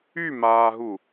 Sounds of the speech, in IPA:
y m aː ɦ u

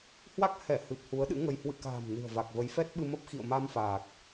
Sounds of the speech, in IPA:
h w a˦˥ k̚ h ɛ˧˩ h ɨ˨˩ p̚ h u˨˦ ə̯ ɗ ɨ̰˧˥ ŋ ə˧ j h w ɨ̰˧˨ k a̤ː˨˩ m n ɨ̤˨˩ ə̯ v a˨˩ k̚ v ə˨˦ j f ɛ˦˥ t̚ ɓ ɨ˧ m ə˦˥ p̚ x ḭ˧˨ ə̯ m a˧ m f aː˨˩ k̚

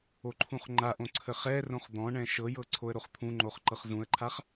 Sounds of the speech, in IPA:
o ǃʰ ũ χ ŋ͡ǃ a ʔ õ ǀʰ ə χ ɛ r õ χ d̪ ɔ̃ ɳ ɛ̃ ʃ ɤ j ɤ ǀʰ o ə̯ ɾ o χ t̪ʰ ũ ŋ͡ǃ o χ ǃ ɤ χ z ũ ə̯ ǃʰ a χ

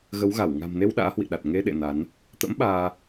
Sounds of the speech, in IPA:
ɣ ə˨˦ w ɣ a˧˩ w ŋ a̤˨˩ m n e˧ w ɗ a̰ː˧˥ h w ḭ˧˨ ɗ a˨˩ t̚ ŋ e˧ ɗ ḛ˧˨ n a˨˦ n | t̪ ə̰˧˥ m ɓ aː˧

